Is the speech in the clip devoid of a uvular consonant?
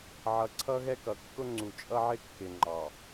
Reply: yes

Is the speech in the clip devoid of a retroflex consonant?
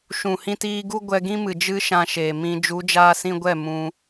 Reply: yes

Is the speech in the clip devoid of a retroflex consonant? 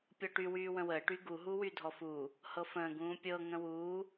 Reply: no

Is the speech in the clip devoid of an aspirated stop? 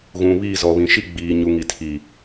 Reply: no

